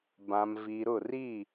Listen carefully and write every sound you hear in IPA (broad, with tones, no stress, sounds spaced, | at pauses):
b ã˨ m v i˨ ɾ ʊ˦˨ r i˦˨